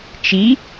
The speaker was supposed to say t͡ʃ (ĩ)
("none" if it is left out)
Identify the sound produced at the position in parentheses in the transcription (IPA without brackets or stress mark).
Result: i